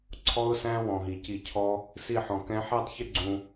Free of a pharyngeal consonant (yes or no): no